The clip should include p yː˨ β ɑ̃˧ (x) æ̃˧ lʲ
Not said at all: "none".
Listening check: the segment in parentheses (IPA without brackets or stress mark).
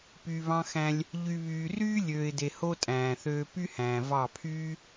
x